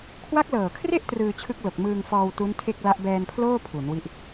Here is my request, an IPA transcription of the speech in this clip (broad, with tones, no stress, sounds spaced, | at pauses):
kʰ w a˦˥ k̚ l ɤː˨˩ kʰ r e˥˩ ʔ t r ɯː˧ t͡ɕʰ ɯ˦˥ k̚ l o˨˩ k̚ m ɯː˧ ŋ f ɔː˧ w t u˦˥ n tʰ e˥˩ k̚ l a˦˥ ʔ b ɛː˧ n pʰ l oː˥˩ pʰ u˩˦ n w i˦˥ ʔ